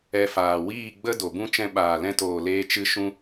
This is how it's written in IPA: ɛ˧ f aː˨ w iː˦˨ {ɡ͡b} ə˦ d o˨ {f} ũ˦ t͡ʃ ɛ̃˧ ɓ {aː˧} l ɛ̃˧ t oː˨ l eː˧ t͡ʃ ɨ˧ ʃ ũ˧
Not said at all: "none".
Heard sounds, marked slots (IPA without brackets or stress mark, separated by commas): ɡ͡b, b, aː˨